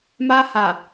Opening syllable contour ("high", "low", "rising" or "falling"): high